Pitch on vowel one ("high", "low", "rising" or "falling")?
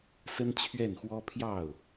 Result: high